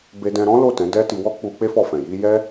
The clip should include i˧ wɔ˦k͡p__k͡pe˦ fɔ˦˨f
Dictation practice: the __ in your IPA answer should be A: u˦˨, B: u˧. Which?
B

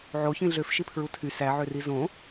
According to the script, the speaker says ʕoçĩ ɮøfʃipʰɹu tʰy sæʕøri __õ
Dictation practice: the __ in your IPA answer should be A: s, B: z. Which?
B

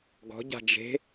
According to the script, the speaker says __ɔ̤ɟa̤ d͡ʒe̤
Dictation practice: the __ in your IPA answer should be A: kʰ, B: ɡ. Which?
B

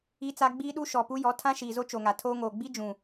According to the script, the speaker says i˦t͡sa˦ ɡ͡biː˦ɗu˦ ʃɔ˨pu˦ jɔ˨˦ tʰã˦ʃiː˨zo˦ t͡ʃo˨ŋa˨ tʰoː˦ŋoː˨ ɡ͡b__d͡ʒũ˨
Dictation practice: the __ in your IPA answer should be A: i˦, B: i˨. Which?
A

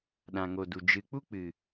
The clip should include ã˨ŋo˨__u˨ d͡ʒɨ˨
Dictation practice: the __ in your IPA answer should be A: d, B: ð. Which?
A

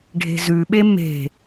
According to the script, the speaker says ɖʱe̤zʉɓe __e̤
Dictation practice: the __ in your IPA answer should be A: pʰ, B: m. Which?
B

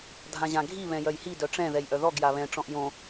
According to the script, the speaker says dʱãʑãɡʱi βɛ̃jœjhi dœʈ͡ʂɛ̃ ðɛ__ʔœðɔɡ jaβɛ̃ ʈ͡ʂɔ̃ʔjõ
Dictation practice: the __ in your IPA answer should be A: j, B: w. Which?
A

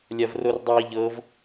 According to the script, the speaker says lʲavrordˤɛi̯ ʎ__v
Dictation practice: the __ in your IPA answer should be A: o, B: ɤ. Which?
B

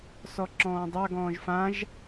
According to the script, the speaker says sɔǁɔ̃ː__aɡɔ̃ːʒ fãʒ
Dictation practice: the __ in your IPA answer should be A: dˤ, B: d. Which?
A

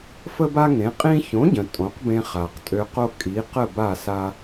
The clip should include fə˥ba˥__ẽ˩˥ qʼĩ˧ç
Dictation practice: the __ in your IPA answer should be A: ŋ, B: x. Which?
A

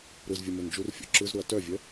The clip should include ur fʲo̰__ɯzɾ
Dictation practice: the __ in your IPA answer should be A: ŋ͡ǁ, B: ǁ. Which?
B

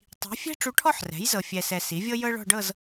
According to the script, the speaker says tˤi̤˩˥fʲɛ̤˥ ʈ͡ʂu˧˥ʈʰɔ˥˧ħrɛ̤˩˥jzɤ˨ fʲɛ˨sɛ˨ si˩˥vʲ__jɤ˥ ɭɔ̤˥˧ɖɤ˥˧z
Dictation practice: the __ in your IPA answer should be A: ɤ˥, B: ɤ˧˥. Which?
A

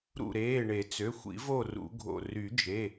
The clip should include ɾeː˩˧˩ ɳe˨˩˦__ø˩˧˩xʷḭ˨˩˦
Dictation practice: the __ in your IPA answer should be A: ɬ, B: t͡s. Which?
B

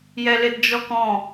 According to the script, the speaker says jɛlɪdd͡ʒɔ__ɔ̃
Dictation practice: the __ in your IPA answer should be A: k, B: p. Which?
A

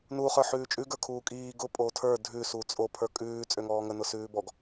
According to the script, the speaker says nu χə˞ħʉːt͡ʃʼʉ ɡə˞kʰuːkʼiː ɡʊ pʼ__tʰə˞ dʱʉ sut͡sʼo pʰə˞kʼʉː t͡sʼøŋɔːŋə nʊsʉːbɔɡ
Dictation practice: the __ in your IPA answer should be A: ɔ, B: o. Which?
B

